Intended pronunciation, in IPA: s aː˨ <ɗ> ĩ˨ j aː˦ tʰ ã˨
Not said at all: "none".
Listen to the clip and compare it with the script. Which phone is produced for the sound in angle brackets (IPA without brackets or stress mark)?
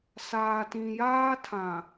t